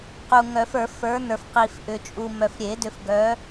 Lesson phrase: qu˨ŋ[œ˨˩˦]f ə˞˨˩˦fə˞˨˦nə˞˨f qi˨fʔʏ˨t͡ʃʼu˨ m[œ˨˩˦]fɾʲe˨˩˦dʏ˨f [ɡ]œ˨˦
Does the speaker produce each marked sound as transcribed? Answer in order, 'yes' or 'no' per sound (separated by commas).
yes, no, yes